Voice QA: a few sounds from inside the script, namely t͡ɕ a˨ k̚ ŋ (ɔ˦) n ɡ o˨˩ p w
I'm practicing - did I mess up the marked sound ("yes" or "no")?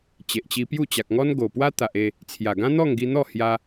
no